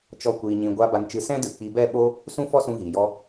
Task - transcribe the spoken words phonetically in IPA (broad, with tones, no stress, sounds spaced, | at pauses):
t͡ʃ ɔ˦ kʷ iː˧ ɲ ĩ˧ ɡʷ a˦ b a˧ n t͡ʃ ɨ˧ s ɛ̃˦ d ɨ˨ k͡p i˧ b ɛ˦˨ ɓ o˦ | s ũ˦ f ɔ˦ s ũ˧ ɣ iː˨ j ɔ˦